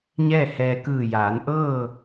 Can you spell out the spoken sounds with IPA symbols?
ɲ ɛː˥˨ h ɛː˧ k ɯː˧˩ j aː˩˧ n ʔ ɤː˥˨

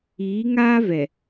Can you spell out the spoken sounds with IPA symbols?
iː˨˦ ŋ aː˦ v ɛ˨

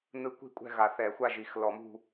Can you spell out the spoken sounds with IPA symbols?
n ɯ˧˥ kʷ i̤˥˨ kʷʼ ɛ̤˥˨ ɣ a˨˩˦ θ ɛ˨˩˦ xʷ a˥˨ ʒ i˨˩˦ x l ɔ˨˩˦ m ṳ˥˨

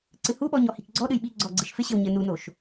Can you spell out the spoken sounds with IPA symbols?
ǀ ɨ h u ɓ ɔ ɲ ɔ h i k ɡ͡ǀ ɔ ɗ ɨ j ɓ i ɡ͡ǀ ɔ ɡ͡ǀ ɨ ʃ f ɪ ɕ ɘ w ɲ ɘ n u n o ʃ

